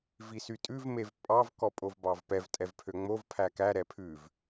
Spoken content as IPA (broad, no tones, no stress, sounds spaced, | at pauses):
v i s y tʼ ʉ v m e v pʼ ɑ v k ɔ pʼ o v b ɑ v p ɛ v tʼ ɛ v pʰ ø ŋ͡m o v pʰ æ k æ ɾ ɛ pʰ ʉ v